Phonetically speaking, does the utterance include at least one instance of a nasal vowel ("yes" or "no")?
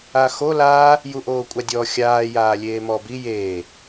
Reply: no